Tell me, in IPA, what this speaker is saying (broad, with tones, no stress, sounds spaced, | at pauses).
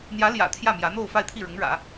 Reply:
n̪ j ä˧˥ l j ä̰˨˩ t̪ʰ j ä˥˩ m j ä˧˥ n̪ o˥˧ ʊ̯ f a˥˧ ɪ̯ t̪ʰ i˥˩ ɻ ʊ˧˥ ŋ ɻ ä̰˨˩˦